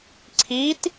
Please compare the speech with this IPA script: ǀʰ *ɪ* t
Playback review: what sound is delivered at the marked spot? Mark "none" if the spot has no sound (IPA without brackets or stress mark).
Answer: i